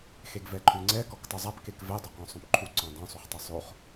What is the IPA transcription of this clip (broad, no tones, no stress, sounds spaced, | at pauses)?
x e ɡ v ɛ ǃʰ ʉ ŋ͡ǀ ɛ k ɔ k tˤ ʉ zˤ a p k e k v ɛ dˤ o q ɔ̃ sˤ õ p ǃʰ u ǀ ɔ̃ dˤ õ sˤ u χ tˤ ʉ sˤ o χ